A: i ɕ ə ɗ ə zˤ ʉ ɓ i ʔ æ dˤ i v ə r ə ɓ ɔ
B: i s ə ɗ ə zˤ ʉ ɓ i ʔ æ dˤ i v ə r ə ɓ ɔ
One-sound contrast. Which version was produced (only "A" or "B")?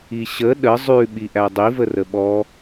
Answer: A